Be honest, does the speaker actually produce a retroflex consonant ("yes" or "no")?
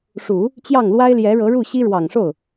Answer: yes